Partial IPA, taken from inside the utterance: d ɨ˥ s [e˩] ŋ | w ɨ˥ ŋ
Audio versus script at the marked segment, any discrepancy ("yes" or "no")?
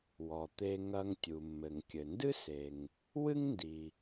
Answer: no